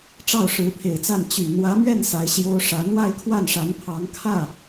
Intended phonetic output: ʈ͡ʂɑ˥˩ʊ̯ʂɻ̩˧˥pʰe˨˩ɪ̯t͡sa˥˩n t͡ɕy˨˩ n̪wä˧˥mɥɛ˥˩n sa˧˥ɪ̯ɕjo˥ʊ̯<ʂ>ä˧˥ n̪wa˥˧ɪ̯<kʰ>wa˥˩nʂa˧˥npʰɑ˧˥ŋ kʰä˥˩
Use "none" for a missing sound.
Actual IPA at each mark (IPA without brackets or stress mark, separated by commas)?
ʂ, kʰ